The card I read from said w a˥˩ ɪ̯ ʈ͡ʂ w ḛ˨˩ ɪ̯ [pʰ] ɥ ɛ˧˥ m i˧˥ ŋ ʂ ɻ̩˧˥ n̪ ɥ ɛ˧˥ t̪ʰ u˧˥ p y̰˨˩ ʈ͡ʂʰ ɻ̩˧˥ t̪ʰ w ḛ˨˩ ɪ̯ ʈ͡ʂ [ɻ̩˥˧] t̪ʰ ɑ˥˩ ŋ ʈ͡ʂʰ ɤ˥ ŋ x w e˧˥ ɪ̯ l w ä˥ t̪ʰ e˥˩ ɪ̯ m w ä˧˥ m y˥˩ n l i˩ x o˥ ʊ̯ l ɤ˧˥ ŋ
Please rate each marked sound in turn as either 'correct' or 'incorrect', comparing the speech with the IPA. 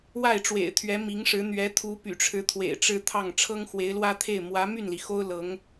incorrect: t̪ʰ, incorrect: ɻ̩˥

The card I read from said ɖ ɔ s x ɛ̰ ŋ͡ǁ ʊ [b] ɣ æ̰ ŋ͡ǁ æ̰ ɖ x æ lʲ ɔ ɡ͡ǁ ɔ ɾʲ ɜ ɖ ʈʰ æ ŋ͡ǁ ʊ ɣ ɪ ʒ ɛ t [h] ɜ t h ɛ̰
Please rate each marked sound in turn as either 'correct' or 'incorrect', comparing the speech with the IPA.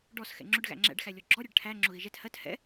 incorrect: ɖ, correct

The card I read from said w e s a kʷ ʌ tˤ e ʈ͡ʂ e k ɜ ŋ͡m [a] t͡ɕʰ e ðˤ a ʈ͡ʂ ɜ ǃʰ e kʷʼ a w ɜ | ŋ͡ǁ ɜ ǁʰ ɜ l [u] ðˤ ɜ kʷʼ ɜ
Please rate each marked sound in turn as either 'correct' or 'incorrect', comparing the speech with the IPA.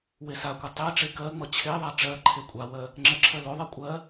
incorrect: ʌ, incorrect: o

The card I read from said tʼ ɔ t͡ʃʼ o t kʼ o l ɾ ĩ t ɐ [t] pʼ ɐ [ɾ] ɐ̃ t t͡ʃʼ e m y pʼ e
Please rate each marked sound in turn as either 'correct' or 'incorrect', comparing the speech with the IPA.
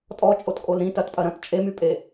correct, correct

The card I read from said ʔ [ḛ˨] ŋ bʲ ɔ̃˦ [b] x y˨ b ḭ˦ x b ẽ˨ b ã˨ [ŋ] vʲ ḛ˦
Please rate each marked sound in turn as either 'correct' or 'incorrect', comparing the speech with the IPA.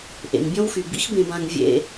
correct, incorrect: w, correct

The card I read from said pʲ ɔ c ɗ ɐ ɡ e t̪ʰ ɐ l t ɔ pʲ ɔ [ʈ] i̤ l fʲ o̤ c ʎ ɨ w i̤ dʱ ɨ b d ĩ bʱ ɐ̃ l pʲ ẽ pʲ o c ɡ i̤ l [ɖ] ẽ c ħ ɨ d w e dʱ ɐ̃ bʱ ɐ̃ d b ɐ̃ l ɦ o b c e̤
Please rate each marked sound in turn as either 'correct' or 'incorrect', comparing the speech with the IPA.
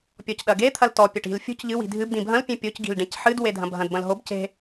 correct, correct

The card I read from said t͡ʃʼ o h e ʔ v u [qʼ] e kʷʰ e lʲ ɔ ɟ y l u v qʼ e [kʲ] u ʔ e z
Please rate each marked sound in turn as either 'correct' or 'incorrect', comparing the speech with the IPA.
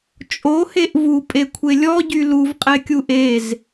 incorrect: pʼ, correct

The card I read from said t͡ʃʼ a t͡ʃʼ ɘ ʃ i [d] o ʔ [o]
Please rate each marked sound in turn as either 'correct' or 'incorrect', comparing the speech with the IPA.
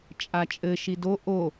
correct, correct

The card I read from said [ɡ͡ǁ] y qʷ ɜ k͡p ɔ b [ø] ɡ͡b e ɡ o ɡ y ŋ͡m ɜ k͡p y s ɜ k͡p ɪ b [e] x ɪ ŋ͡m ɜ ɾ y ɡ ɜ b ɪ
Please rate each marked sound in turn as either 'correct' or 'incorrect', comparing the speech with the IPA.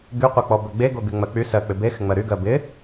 incorrect: ɡ, correct, correct

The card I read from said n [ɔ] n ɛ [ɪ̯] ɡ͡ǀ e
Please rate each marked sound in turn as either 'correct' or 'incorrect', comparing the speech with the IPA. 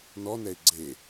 correct, correct

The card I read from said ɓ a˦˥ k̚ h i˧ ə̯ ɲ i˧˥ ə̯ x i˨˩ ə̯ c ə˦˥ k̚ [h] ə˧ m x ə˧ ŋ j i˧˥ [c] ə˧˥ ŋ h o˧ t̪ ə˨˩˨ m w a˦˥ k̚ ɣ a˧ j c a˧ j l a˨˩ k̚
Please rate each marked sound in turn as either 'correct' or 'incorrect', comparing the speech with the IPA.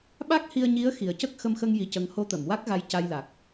incorrect: x, correct

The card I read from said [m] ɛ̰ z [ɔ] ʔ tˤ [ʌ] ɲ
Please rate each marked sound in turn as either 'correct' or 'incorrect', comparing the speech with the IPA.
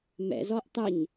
correct, correct, incorrect: ə

